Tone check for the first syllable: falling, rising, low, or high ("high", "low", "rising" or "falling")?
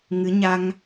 rising